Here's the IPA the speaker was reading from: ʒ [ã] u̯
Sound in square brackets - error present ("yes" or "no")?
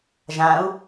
no